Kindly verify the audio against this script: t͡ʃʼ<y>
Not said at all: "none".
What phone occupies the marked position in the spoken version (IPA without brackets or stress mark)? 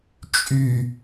y